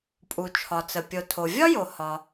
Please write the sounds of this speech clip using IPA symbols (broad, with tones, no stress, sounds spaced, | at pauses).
pʼ u˩ t͡ʃʰ ɒ˩ t͡s ə˩ pʲ o˩ tʰ o˩ vʲ ɒ˥ j o˩ h ɒ˩